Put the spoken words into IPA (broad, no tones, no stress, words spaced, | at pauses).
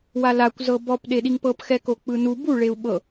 walakʷ zɤbɔp ɗeɗiŋpɤp xɛkok͡pɯnu bu ɭeu̯ɓɤ